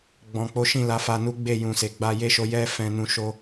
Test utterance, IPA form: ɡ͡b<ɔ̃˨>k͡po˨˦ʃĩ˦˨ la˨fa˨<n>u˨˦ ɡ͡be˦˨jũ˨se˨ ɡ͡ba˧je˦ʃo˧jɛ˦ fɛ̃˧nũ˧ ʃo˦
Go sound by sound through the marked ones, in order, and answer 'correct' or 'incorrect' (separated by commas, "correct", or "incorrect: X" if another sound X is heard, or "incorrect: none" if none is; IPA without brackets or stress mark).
correct, correct